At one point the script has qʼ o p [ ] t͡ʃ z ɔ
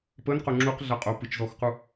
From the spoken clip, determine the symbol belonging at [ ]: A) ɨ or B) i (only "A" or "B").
A